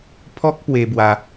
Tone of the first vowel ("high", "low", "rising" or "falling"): high